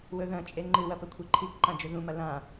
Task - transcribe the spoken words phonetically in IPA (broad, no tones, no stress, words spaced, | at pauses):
wɵðɐ̃t͡ʃʼe ŋ͡ǃɨwɐ pɵkʷʰiǃʰikǃã d͡ʒɵðũmɐ lã